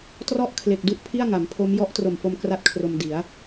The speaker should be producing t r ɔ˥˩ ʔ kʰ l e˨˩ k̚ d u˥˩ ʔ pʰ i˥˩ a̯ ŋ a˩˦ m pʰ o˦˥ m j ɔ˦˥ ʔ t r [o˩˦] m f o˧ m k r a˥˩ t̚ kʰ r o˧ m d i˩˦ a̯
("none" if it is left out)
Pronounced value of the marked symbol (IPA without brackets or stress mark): o˨˩